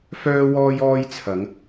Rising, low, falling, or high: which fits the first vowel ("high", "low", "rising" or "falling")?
high